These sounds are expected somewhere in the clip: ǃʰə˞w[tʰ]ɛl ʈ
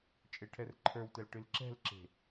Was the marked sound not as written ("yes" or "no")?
yes